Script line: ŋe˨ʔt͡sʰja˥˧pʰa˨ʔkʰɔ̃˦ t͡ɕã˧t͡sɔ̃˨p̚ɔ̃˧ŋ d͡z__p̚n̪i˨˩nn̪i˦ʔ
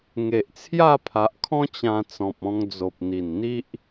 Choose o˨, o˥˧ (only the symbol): o˨